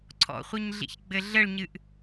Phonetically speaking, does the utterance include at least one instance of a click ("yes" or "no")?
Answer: yes